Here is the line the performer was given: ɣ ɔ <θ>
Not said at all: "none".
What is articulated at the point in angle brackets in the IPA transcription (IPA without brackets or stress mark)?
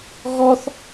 θ